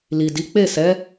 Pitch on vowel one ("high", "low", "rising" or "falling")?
low